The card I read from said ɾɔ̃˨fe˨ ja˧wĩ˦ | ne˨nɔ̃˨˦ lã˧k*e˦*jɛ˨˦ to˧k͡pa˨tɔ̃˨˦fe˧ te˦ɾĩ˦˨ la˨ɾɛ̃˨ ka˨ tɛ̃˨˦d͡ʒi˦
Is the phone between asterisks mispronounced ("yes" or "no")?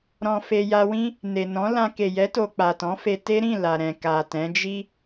yes